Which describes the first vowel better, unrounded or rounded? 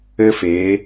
unrounded